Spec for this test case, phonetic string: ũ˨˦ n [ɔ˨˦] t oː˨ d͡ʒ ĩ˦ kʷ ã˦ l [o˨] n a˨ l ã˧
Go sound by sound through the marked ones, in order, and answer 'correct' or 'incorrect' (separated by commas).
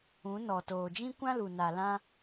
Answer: incorrect, incorrect